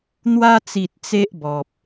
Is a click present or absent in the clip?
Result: absent